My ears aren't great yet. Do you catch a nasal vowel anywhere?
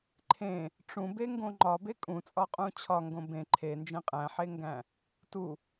yes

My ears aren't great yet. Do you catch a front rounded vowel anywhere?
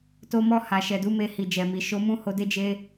no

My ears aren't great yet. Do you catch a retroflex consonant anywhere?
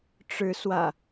yes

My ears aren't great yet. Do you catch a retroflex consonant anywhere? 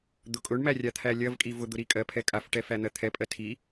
yes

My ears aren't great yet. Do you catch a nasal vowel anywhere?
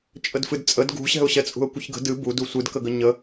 no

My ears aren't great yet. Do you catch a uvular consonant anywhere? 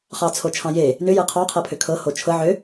yes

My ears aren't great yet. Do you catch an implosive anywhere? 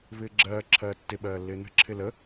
yes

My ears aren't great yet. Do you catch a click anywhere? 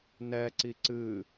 yes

